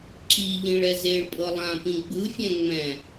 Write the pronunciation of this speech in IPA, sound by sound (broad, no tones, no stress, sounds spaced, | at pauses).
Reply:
ǁ i ʎ ĩ ɭ ɛ z e ɭ pʼ ɤ lˠ ã p ĩ ɡ͡b ɯ fʲ ɛ̃ ŋ͡m ɛ̃